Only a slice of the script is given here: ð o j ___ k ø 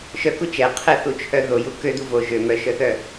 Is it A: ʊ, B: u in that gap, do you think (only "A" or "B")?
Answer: B